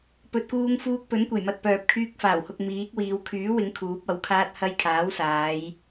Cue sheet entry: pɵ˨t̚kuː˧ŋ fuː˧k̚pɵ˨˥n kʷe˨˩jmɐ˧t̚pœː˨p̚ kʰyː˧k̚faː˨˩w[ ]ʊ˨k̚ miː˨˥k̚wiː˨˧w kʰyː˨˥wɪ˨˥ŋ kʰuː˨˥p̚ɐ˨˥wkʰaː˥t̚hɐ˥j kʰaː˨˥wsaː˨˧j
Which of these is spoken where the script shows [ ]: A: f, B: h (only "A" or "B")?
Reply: B